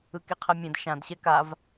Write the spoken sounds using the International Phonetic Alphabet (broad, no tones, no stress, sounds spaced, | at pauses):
ɯ k i qʰ e mʲ ẽ d ʃ ã d ɕ ɛ k a v